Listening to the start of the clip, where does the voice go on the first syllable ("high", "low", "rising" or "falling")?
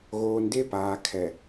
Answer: low